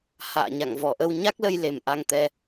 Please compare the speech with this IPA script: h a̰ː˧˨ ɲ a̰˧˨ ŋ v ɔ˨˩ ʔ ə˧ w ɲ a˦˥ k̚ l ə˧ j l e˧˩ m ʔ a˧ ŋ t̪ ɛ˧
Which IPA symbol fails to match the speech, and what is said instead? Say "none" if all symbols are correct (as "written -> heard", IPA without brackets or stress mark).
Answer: none